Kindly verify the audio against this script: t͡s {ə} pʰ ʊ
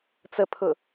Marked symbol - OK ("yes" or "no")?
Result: yes